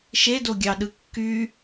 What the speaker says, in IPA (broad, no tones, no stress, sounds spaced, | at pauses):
ʃ e d o ɡʲ ɑ ɗ ɯ kː y